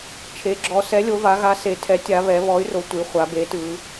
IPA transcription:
t͡ʃʰ e˩˧ ɡ͡ǁ ɔ˩˧ s ɛ˨˥ lʲ o˩˧ v a˩˧ ɣ a˨˥ s e˩˧ tʰ ɛ˨˥ tʲ a˩˧ β ɛ˩˧ β ɔ˨˥ y̯ r o˩˧ tʷ i˩˧ χʷ a˩˧ b e˨˥ t ɯ˩˧

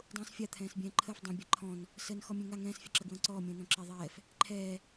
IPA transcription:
dˤ ũː s fʲ a t̪ʰ ɛ̃ː s bʲ ɛ̃ː ǃʰ ə f dˤ ə̃ bʲ a ǃʰ ɔ̃ n | s ə n x ɔ mʲ ɛ̃ ŋ a ŋ ɛ̃ː s fʲ a ǁ ə ɡ w ə̃ː ǀ ɔː mʲ ə̃ː n ɔ̃ ǁ ɛ ðˤ ɛː f | ǃʰ ɛː

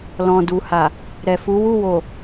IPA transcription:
l ɔ̃˨ d u˨ h a˨ | ɾ ɛ˨ f u˨˦ w u˦˨ w o˨

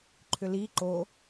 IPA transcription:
ǃʰ ʏ l i ǃ o

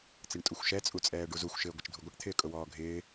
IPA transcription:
t͡s ɪ ɳ tʼ u xʷ ʃ ɛ t͡sʼ u t͡sʼ ɛː ɖ u z u xʷ ʃ ɪː ɡʷ ɪ t͡ʃ dʱ u ɡʷ ə ʈ t̪ʰ ɪː kʼ ʊ w ɔː ɡʱ ɪː

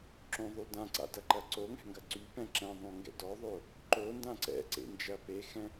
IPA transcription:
ǁ õ ðˤ y d ã ǀ a̰ d ɐ ǃ ɐ ǀ o ŋ ɛ̤ ŋ ɡ ɐ ǀ y p ɛ̃ ǁ ɛ̃ ðˤ õ ŋ ɡ ɛ̰ d ɔ ðˤ o | ǃ o n d ã ǀ ɛ̰ ǀ ḛ n d͡ʒ ɐ p e x ɛ̃

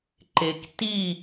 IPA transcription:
ǃ e k t i

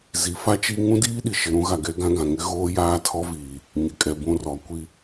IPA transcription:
z i˨˦ f a˦ t͡ʃ i˦ ŋ ũ˦ d iː˦ ɗ i˨ ʃ ɪ˨ ɾ ũ˨˦ ɣ a˨ ɡ ɛ˦ ɡ ã˦ ɡ ã˨ ŋ ɪ˦ ɣ oː˦ j aː˦ tʰ ɔ˦ v iː˨ | ɲ ɪ˨ kʼ ɛ˨ b ũ˦˨ r ɔ˨˦ kʷ i˦

